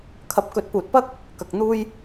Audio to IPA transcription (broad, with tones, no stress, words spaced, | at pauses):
kʰɐ˨˥p̚kɵ˨˥t̚ puː˨t̚pɐ˥k̚ | kɐ˨k̚n̪uː˥j